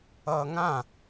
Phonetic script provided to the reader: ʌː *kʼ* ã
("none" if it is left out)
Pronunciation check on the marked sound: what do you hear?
ŋ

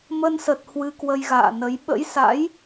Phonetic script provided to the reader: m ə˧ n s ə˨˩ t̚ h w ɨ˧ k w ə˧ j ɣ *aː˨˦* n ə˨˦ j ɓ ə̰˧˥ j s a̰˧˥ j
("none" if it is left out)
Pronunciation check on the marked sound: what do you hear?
a̰ː˧˨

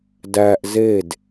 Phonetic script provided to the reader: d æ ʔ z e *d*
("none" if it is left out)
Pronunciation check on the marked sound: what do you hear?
d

